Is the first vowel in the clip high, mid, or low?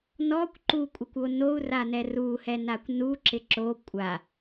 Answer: mid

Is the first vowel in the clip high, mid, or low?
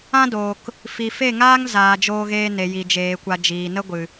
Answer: low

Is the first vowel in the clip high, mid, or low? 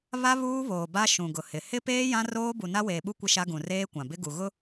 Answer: low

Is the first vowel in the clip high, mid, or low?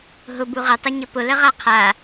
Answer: high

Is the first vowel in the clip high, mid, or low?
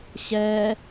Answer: mid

